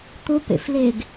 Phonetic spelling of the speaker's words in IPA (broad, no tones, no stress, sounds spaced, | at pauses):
t̪ ʊ p ḛ f l e ɡ